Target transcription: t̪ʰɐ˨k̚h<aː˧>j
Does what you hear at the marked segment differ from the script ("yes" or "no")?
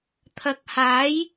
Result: yes